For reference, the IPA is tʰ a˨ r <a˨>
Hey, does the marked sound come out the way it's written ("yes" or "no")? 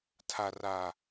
yes